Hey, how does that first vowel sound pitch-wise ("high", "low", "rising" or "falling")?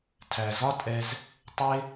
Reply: low